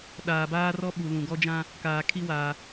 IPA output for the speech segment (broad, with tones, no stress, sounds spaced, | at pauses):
ɗ aː˨ b aː˦ r ɔ˦ ɓ u˨ l ũ˨ ɡ ɔ˦ d͡ʒ ã˦ | k aː˨ kʰ i˦ w aː˨